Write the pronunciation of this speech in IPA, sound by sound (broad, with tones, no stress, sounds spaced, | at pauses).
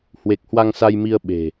h w e˨˩ k̚ h w a˧ ŋ s a˧ j m i˧ ə̯ ɓ e̤˨˩